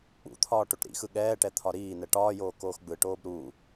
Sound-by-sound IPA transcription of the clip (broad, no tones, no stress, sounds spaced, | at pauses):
k͡p ṵ t̪ʰ ɒː ʈ o ʈ ɾ ḭ x ɯ ɠ ɛː ʈ ɛ t̪ʰ ɒ ɾ iː n ɛ ʈ ɒː j oː k oː x ɡ͡b ɯ ʈ oː b ɾ u